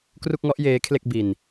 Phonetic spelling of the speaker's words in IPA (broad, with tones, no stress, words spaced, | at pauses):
kru˥˩k̚ŋɔ˦˥ʔjeː˦˥ kʰle˥˩k̚bi˧n